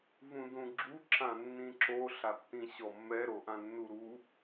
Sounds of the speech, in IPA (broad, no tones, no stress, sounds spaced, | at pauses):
v ũ d ũ ɡ͡ǁ u ǁ ã nː ĩ ǁ o ɬ a tː ĩ ɕ ɔ mː ɛ ɾ o ʔ ã nː u ɾ u